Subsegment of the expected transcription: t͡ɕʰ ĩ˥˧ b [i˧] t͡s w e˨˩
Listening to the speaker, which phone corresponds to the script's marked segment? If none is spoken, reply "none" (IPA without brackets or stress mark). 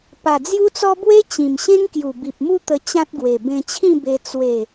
e˧